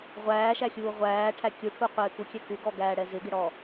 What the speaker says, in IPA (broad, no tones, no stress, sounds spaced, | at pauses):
ʁʷ æː ʃ æ xʲ uː ʁʷ æː ʈʰ æ kʲ u ʈʰ u qʷ ɪː k u kʲ ɛ k u ɡ ɔ ɡ æː ɽ ɛ z ɪ ɡ ɪ ɽ ɔ